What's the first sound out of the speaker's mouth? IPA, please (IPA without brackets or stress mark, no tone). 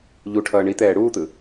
ʎ